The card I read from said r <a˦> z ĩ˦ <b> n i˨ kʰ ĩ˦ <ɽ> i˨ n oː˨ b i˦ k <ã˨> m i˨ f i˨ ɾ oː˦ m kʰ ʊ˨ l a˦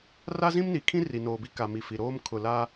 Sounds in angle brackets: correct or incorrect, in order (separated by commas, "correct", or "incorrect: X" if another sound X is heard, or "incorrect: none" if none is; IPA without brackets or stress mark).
correct, incorrect: m, incorrect: r, incorrect: a˨